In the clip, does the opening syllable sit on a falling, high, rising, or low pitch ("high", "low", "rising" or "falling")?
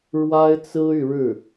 high